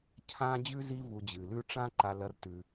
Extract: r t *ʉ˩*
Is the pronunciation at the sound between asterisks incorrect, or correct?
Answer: correct